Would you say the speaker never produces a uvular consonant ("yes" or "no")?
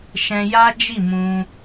yes